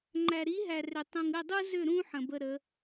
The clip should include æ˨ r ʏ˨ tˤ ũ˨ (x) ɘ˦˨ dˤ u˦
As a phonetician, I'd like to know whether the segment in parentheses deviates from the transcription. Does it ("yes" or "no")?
yes